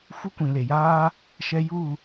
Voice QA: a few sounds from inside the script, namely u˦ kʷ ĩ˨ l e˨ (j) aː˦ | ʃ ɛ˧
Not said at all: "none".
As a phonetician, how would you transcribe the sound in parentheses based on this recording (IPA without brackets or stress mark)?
j